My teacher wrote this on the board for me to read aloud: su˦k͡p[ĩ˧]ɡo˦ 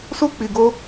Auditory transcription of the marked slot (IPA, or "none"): i˧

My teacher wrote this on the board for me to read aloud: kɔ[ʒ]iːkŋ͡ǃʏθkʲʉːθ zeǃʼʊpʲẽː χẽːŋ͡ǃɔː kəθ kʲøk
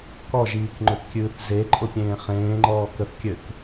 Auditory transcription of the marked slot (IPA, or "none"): ʒ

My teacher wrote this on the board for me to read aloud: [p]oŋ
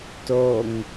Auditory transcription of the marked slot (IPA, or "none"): t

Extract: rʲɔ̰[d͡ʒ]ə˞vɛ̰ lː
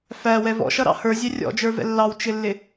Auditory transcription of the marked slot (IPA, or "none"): d͡ʒ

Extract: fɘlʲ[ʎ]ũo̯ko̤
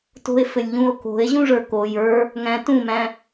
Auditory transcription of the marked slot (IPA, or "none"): ʎ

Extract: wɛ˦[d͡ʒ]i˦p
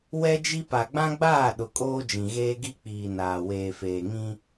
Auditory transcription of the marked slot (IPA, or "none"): d͡ʒ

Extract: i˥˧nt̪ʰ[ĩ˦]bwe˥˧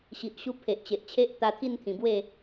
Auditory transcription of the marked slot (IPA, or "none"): ĩ˨˩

